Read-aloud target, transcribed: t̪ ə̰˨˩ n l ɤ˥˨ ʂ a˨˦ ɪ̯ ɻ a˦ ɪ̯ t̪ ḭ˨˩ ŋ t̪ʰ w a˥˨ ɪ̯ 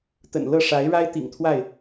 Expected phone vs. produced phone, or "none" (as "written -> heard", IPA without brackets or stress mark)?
none